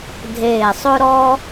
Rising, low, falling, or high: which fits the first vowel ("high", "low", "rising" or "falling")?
low